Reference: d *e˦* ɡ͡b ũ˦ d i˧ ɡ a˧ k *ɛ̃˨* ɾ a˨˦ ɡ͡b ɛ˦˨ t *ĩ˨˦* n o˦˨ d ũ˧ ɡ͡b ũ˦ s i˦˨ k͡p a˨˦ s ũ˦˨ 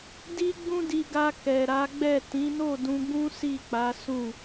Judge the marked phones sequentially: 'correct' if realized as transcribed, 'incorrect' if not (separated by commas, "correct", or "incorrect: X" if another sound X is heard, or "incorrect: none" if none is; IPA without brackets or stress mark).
incorrect: i˦, incorrect: ɛ˨, correct